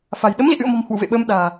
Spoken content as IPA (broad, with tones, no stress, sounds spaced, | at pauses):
f a̤˨˩ j ɗ ə˨˦ m l ḭ˧˨ ʔ ɨ̰˧˨ ə̯ m ɔ̤˨˩ m h w ṵ˧˨ v ḛ˧˨ ɓ əː˧ m ɗ a̤ː˨˩